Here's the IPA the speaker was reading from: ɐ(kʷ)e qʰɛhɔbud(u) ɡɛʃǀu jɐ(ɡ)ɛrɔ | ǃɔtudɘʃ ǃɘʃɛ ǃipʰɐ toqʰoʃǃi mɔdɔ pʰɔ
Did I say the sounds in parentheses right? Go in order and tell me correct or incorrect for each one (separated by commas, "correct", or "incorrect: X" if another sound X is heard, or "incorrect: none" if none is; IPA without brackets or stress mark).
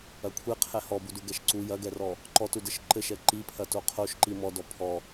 incorrect: kʷʰ, correct, correct